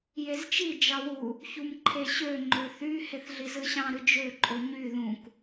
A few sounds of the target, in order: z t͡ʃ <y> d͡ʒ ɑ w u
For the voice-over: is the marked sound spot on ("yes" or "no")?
no